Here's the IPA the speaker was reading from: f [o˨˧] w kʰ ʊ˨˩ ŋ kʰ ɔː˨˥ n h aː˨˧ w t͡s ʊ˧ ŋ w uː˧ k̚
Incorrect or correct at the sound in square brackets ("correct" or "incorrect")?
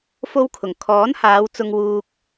incorrect